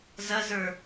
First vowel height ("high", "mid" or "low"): low